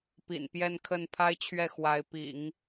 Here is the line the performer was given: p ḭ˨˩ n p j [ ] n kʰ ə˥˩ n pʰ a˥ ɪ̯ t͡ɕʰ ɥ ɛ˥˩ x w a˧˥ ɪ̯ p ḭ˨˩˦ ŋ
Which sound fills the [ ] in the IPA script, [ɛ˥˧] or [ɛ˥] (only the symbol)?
ɛ˥˧